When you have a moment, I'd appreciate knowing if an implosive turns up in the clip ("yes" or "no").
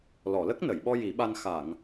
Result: yes